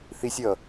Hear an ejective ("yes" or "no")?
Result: no